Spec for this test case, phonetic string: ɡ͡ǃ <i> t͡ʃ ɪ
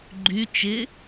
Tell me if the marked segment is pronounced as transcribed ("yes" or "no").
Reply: no